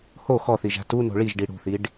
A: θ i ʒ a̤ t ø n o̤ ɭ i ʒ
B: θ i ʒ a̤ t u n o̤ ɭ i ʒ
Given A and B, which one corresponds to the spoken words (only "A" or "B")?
B